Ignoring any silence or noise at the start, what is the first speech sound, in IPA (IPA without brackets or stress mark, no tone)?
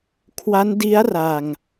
kʰ